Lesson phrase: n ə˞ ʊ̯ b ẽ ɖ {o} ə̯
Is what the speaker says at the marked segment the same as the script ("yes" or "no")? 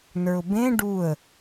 no